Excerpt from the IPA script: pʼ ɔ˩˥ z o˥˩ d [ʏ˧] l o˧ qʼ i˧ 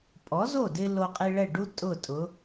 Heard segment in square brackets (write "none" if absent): ɪ˧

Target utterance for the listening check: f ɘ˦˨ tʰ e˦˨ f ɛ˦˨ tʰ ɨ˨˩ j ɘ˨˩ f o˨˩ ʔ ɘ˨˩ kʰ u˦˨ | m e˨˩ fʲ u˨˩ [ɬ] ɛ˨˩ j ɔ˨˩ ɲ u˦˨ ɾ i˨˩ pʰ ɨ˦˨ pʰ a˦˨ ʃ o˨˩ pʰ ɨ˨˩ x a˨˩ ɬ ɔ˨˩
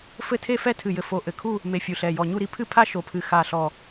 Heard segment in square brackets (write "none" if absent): ɬ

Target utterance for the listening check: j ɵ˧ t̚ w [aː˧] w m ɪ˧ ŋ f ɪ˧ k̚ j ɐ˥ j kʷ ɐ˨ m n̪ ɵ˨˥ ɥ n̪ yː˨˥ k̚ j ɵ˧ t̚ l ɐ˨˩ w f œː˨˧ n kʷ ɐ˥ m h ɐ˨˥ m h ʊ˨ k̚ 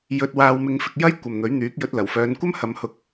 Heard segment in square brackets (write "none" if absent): aː˧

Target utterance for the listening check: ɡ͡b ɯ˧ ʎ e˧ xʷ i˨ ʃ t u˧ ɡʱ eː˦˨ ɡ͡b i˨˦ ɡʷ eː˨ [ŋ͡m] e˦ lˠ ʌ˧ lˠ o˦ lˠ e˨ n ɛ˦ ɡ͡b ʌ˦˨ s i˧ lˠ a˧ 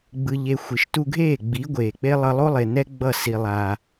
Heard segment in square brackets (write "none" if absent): k͡p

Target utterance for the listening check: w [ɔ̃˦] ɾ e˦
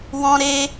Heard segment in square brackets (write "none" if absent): ɔ̃˦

